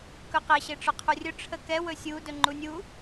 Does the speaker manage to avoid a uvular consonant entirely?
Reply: no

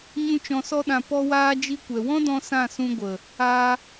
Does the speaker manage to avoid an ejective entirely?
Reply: yes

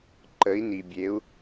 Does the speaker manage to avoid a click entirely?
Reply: no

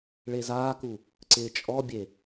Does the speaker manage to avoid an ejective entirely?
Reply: no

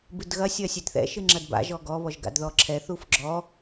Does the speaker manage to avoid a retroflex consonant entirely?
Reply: yes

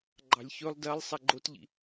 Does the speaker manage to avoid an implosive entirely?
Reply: yes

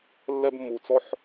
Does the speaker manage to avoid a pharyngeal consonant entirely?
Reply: no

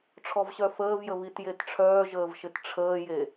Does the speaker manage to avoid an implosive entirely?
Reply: yes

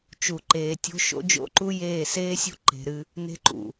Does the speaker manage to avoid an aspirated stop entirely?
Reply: yes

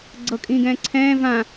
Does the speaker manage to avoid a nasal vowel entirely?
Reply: no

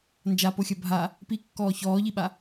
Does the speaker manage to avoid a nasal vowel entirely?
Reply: yes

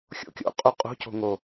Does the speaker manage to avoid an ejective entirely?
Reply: no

